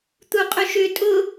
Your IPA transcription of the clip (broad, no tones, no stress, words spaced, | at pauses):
t̪uqʼʏʃʏ tʼʊ